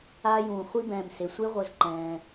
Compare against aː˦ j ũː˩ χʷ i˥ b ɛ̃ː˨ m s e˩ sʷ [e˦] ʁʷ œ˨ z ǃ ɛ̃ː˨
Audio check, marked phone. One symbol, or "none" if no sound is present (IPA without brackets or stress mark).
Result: e˦